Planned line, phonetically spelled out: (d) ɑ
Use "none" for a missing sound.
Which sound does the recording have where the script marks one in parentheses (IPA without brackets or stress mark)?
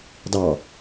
d